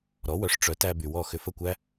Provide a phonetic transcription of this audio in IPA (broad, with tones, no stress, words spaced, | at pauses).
ɾɔ˩˥wœ˩˥ʂ ʈ͡ʂœ˩˥ tæ˧ by˩wɔ˥˩ xʏ˧fə˥˩kʷæ˥